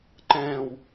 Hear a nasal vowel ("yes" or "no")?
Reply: yes